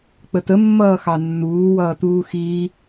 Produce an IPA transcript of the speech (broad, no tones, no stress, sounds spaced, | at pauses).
k͡p ə t ə mː ʌː x ɑ nː uː w ʌː t uː x iː